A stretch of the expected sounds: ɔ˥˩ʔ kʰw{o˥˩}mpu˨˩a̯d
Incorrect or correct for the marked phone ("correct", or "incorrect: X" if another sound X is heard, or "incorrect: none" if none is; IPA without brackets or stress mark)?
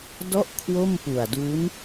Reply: correct